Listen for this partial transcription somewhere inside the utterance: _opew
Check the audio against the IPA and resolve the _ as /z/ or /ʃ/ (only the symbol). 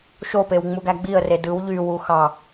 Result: ʃ